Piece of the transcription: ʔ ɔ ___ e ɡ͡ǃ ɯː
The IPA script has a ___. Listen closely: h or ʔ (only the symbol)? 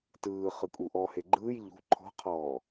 h